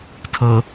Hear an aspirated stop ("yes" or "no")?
yes